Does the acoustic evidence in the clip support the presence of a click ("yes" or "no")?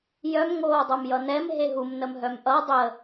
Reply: no